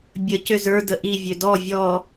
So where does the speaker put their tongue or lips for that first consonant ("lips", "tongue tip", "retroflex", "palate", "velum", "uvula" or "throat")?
lips